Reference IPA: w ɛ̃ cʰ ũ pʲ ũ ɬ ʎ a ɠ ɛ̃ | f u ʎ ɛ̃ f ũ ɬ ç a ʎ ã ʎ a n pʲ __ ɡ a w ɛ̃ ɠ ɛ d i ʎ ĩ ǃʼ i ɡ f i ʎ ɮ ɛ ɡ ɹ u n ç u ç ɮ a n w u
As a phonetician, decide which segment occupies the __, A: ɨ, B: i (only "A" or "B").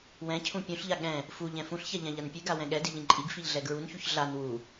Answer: A